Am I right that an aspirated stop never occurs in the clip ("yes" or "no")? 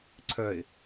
no